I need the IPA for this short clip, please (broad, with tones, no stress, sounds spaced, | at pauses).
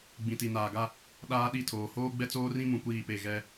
ɡ͡b ĩ˨ t i˨ n aː˨ ɡ a˦ | ɗ aː˦ ɗ i˦˨ tʰ oː˨ h oː˦ ɡ͡b ɛ˦ t͡s oː˦ r ĩ˦ m ũ˨ kʷ iː˦˨ p e˦˨ ɣ ɛ˦